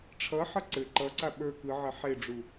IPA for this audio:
ʈ͡ʂʰ ʌ ħ ʌ ǀ ɘ ǃ ʌ ǀ a ɓ ə˞ k ɯ ʕ ɘ ħ e ɖ͡ʐ u

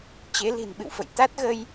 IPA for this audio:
t͡ɕ e˨˦ l i̤˨˩ n ɓ ɨ̰˧˨ w f ə̰˧˨ j t̪ a˦˥ t̚ ɣ ə˧ j

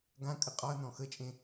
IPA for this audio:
ɡ ã kʼ ə qʼ ɒ ɐ̯ n ɔ̃ x ə t͡ʃʼ ẽ

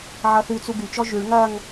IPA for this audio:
ʕ ʌ θ ʉ t͡s u ɡ y t͡ʃ ɔ ʒ ʉ ɭ ŋ ɐ ŋ

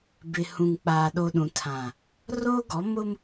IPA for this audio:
b ɪ˨ h ũ˨ ŋ k͡p aː˨ ɗ o˨ ɗ ũ˨ tʰ ã˨ | r oː˦ ɡ ɔ˨˦ m ʊ˦ m

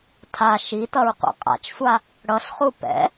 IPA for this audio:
tʰ a ʃ i t ʌ ɹ qʷ ɛ̰ qʼ a̰ t͡ʃ sʷ a | ɽ ʌ ɬ χ u p ɛ̰

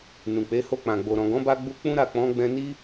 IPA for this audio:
n ũ˨ k͡p e˨˦ h o˧ k͡p ã˨ ɡ͡b o˨ ɾ ɔ̃˨ ɡ ɔ̃˨˦ b a˧ ɡ͡b u˧ k͡p ũ˦ ɾ a˦˨ k͡p ɔ̃˨˦ ɡ͡b ɛ̃˧ n i˦

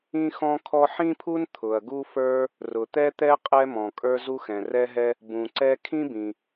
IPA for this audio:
ĩ˥ x ɔ̃˥ kʰ ɔ˥ ħ ĩ˥ pʰ u˥ n t̪ʰ ʊ˩ ɐ̯ ɡ u˥ f ə˞˥ | r ʊ˩ t̪ ɛ˥ t̪ ɛ˥ qʼ ɛ˥ m ɔ̃˩ kʼ ə˞˥ z u˥ x ɛ̃˩ r ɛ˥ ɦ ɛ˥ | b ũ˩ ǀ ɛ˥ kʰ ĩ˥ b ĩ˩

